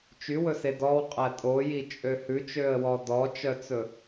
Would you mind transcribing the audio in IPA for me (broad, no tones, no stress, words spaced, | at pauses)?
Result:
t͡ʃywɵse dɔwqʼæ tʼojit͡ʃʼø hʉt͡ʃøə̯wɔ dɔt͡ʃœt͡sɵ